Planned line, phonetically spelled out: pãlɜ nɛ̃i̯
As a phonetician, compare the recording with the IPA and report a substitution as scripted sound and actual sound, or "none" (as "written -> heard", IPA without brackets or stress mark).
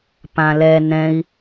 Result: ɜ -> ɛ